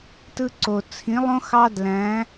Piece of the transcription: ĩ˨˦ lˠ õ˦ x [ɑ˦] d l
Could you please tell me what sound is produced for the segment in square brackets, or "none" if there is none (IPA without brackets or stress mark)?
ɑ˦